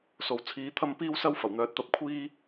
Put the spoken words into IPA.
s o˨ w t͡sʰ iː˨˥ t̪ʰ ɐ˥ m p iː˥ w s ɐ˥ w f ɐ˨˩ w n̪ œː˨˥ t̚ t̪ ɐ˥ p̚ kʷʰ iː˥

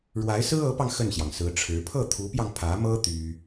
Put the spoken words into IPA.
ɻ w a˧˥ ɪ̯ s ɹ̩˥ ɤ˧˥ p ɑ˧ ŋ x ə˥˩ n ɕ j ɑ˩ ŋ s ɹ̩˧˥ ʈ͡ʂʰ ɻ̩˧˥ pʰ ɤ˥˩ t̪ʰ u˧˥ p j ɑ˧ ŋ pʰ ä˧˥ m ɤ˥ t̪ y˥

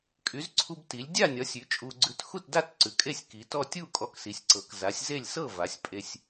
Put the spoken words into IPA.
kʼ y˩˥ z ǀʰ u˧ b t i˩˧ lʲ dʲ a˥˨ nʲ ɒ˩˥ sʲ ʉ˩˥ t͡ʃʼ u˧ ɡ͡ǀ ʉ˧ t x u˥˨ t d a˥˨ t ǀ ʉ˩˥ kʼ e˥˨ sʲ k i˩˥ t ɔ˥˨ tʲ u˥˨ kʼ ɔ˧ k s i˩˧ sʲ ǀ ɤ˩˥ k z a˩˥ sʲ z e˥˨ lʲ s ɤ˥˨ v a˩˥ sʲ pʼ e˧ sʲ

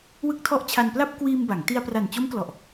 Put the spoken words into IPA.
w ɯ˦˥ k̚ tʰ ɔ˦˥ ʔ t͡ɕʰ a˧ n p l a˥˩ p̚ k w iː˧ m b a˩˦ ŋ t i˧ a̯ p r a˨˩ n t͡ɕ o˦˥ m k l ɔ˨˩ ʔ

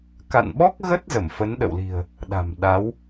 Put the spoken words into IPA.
k a̰˧˨ n ɓ ɔ˦˥ k̚ ɣ ə˦˥ t̚ z ə˧˩ m f ə˨˦ n ɗ ə̰˧˨ w l i̤˨˩ ə̯ | ɗ a̤˨˩ m ɗ a˨˦ w

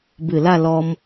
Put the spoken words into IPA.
b ɨ˧˩ l a˥˧ l ɔ˧ m

